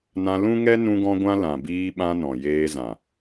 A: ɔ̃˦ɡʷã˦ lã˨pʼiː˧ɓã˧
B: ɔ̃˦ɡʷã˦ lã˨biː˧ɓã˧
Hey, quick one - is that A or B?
B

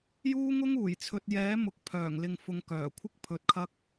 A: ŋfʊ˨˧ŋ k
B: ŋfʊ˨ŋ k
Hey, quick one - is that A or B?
B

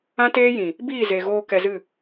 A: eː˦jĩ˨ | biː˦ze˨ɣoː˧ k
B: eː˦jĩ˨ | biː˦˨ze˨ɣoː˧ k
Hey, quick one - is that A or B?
B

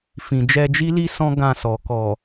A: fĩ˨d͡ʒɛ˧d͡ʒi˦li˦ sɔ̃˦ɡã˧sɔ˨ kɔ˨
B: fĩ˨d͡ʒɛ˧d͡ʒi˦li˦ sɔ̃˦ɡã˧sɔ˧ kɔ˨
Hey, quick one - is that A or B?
A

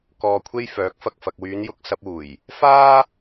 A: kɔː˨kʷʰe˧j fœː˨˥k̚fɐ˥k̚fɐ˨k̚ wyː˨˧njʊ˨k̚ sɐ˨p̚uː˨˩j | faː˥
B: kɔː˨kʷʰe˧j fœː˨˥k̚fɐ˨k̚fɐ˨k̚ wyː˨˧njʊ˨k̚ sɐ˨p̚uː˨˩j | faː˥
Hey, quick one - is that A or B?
B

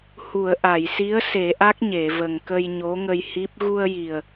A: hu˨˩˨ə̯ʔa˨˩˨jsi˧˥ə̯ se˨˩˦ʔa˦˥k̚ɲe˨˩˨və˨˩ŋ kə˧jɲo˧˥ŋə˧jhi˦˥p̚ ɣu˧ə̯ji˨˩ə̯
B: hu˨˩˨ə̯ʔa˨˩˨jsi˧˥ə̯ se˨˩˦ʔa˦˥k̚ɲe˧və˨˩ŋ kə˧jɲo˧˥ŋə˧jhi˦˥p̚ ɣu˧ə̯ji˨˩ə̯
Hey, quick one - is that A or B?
A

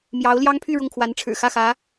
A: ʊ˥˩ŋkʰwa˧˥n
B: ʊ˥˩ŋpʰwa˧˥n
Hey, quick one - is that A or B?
A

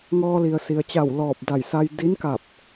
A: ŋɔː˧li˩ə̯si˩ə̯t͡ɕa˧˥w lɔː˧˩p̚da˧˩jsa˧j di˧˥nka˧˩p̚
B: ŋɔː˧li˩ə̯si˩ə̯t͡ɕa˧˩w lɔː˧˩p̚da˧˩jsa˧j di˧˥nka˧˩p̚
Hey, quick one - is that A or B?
B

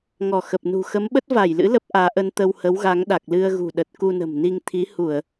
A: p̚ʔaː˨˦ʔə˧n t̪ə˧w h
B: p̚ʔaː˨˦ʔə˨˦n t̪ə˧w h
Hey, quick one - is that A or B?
A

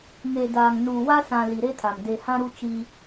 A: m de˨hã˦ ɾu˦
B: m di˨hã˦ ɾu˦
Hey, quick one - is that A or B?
A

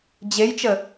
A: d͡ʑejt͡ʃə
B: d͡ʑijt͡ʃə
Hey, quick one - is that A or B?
A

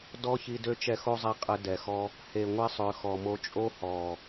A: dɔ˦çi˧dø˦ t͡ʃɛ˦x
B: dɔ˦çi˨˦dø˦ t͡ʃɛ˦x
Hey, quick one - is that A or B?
A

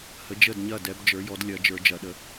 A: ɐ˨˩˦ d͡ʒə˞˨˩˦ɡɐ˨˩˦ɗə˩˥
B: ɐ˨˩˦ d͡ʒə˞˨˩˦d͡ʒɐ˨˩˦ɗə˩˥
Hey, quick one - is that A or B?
B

